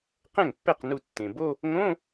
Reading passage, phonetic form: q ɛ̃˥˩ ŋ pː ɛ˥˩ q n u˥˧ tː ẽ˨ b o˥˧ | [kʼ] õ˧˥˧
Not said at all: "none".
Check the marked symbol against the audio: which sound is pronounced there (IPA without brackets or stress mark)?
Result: ŋ